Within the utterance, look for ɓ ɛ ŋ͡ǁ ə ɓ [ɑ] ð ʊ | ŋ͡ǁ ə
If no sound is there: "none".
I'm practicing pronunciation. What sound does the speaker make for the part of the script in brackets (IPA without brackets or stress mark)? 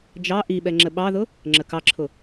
ɑ